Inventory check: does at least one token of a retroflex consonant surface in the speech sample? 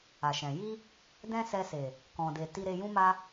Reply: no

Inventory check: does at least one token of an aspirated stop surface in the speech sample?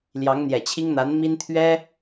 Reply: yes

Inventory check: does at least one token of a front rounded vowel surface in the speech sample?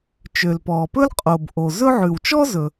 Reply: yes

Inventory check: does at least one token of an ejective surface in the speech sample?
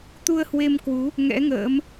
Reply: no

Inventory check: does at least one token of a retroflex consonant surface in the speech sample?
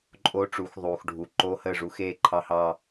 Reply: yes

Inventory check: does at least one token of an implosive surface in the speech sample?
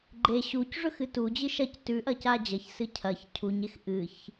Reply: no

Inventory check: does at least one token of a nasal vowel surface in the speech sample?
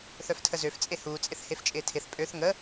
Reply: no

